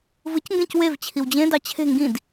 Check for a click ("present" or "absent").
absent